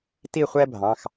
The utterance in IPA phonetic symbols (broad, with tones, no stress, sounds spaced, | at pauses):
t i˥˧ χʷ ɛ˥ bʱ ɑ̃˩˧˩ x